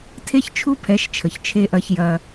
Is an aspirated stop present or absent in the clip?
present